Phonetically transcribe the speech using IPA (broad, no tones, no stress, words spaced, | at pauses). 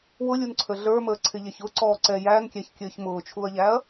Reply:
wʊlʲunǀʰə ɮə˞məːǀʰɪʎɛç ʊǀɔːǀɛ jænkʲæçkʲəːç mʊːt͡ʃʰuɐ̯ʎæɐ̯